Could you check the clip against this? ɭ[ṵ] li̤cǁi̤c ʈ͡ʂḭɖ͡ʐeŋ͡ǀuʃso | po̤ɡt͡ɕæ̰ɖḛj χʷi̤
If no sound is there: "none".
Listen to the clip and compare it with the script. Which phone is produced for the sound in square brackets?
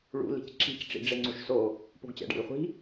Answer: ṵ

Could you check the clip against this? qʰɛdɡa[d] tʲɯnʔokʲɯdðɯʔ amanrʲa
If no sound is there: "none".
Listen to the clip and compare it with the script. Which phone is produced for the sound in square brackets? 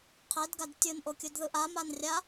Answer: d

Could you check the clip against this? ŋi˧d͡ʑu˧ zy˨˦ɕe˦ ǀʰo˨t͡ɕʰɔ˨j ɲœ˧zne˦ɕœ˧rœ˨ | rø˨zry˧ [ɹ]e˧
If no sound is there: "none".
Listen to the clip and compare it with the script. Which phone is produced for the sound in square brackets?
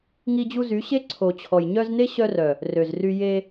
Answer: j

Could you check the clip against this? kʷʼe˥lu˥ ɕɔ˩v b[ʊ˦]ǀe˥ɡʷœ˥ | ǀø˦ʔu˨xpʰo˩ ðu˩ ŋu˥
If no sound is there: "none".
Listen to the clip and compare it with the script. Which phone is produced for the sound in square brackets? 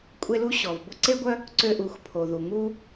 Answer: ʊ˦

